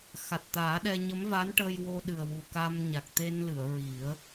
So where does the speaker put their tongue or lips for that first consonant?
velum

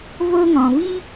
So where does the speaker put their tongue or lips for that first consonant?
lips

